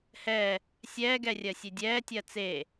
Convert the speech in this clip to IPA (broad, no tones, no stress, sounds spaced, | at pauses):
h ɛː | sʲ ɛː ɡ ɛ rʲ ɜ sʲ e dʲ ɛː tʲ ɜ t͡s eː